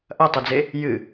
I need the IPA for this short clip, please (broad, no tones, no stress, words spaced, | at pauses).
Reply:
ʔɐtˤɨd͡ze | jɨ